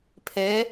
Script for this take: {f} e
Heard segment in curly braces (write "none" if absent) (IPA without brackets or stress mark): pʰ